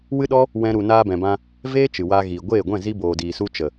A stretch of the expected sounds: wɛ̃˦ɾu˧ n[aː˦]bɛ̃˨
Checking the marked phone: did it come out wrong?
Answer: yes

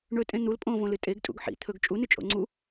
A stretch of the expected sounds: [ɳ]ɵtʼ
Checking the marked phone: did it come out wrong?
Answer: no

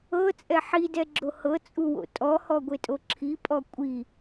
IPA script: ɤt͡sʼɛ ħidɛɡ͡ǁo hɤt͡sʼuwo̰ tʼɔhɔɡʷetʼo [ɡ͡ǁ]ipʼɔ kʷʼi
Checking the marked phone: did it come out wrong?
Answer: yes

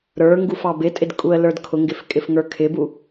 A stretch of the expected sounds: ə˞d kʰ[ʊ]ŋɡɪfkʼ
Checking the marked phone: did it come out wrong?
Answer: no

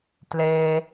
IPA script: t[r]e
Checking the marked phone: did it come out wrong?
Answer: yes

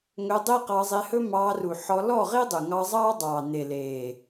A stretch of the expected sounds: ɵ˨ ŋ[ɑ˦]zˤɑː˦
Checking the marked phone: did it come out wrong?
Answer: yes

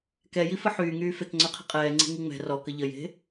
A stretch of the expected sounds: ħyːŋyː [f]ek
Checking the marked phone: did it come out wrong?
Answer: no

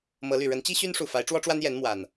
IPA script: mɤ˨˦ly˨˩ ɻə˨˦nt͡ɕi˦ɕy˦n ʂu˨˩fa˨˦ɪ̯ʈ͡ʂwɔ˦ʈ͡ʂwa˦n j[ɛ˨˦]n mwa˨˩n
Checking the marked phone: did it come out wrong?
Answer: no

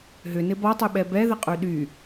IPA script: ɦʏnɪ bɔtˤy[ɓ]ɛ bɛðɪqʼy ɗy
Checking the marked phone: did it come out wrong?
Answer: no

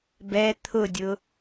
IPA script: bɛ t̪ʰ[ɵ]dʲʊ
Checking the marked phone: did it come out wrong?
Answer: yes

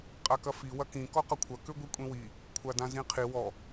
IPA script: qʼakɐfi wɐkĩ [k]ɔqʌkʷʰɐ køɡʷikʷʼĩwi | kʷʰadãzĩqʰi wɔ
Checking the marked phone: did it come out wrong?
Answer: no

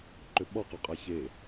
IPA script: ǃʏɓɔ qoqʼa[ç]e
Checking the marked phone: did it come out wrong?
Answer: no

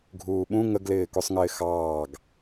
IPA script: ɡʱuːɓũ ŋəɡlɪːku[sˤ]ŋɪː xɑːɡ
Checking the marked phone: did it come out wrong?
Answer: no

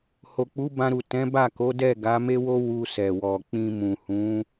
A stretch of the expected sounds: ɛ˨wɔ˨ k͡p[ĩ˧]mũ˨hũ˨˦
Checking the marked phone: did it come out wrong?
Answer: no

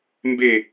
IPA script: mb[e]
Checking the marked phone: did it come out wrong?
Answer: no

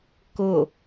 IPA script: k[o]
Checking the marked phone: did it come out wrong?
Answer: no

